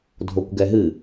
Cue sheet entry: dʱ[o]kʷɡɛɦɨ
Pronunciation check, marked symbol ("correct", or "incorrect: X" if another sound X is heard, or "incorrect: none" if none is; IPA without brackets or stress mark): correct